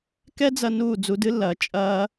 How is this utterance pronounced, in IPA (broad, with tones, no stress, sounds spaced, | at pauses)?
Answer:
k ɛ˦ d͡z ɐ˧ n uː˦˨ d͡z u˧ d ɨ˦ lː ɐː˨ t͡ʃʼ ɐː˧